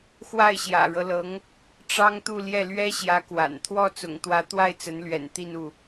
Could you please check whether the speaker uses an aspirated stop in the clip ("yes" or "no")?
yes